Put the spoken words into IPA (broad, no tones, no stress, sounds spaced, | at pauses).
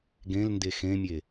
ɡ ẽ l n d e x ẽ mʲ e